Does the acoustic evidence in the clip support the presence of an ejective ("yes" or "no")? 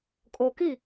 yes